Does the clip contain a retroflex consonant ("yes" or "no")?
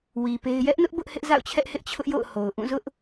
no